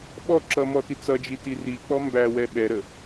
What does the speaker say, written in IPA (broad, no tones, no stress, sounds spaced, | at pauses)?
ɓ ɔ ǁ ʌ m ɔ t i t͡s ʌ d͡ʒ i t i r i k͡p ɔ m b æ w ɛ ɓ ɛ ɾ ə